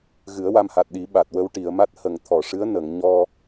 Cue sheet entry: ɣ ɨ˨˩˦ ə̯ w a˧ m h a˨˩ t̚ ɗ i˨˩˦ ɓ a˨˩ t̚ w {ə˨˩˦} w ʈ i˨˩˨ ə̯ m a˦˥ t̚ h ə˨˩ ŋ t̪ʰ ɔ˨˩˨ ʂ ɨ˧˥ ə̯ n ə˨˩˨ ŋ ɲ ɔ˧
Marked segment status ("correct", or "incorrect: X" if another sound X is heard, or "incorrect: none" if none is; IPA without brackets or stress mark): incorrect: ə˧